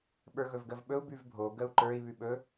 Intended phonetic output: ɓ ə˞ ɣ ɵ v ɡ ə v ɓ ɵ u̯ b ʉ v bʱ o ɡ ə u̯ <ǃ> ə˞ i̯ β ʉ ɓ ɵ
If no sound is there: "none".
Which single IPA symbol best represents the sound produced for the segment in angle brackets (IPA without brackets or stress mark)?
ǃ